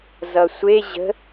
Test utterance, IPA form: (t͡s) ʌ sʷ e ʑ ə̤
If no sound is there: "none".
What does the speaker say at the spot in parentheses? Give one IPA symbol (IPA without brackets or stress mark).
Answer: z